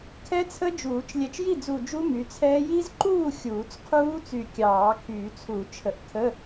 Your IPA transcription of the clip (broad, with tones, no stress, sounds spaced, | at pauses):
kʰ ɛ˦˥ t͡sʰ ə˦˥ d͡ʒ uː˨˩˦ t͡ʃ lʲ ɛ˧˩ t͡ʃ j i˥˩ d͡z u˧˩ d͡ʒ u˦˥ m y˩˥ t͡sʰ ɛː˦˥ j i˦˥ z ǃ uː˥˩ xʲ uː˨˩˦ t͡s qʰ uː˦˥ t͡s y˧˩ kʲ ɑː˨˩˦ kʰ yː˨˩˦ t͡sʰ u˨˩˦ t͡ʃʰ ə˨˩˦ ʔ kʰ ə˧˥˧